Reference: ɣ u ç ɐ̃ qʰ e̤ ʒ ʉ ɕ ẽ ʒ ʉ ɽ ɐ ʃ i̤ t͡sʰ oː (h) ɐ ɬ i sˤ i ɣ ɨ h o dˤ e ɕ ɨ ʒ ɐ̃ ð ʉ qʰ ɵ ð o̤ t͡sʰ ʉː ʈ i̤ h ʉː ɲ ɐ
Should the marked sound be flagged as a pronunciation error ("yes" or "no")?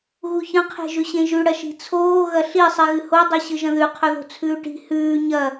yes